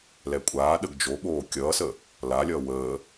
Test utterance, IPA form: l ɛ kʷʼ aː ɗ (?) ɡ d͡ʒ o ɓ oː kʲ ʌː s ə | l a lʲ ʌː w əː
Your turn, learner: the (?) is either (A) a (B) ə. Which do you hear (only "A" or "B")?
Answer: B